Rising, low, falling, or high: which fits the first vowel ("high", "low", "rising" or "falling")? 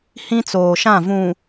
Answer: high